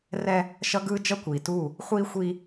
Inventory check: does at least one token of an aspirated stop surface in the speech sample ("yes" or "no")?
no